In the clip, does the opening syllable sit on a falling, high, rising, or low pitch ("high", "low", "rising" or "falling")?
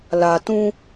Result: low